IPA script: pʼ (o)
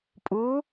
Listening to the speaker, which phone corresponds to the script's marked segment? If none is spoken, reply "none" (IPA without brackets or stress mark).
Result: u